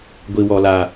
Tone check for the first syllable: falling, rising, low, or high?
high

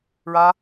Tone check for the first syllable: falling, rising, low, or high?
high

